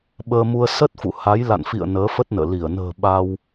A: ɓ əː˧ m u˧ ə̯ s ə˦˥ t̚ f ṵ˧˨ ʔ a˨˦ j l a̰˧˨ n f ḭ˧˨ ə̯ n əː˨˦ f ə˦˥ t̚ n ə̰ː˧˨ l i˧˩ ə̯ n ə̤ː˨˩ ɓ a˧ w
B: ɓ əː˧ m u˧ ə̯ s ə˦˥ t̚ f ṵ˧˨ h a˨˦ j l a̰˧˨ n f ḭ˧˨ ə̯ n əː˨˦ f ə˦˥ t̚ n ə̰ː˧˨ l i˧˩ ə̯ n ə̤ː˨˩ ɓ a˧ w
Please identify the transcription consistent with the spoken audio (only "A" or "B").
B